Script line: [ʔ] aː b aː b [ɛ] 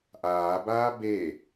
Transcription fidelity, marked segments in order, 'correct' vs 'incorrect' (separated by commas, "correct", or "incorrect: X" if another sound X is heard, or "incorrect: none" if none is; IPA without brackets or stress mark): correct, incorrect: e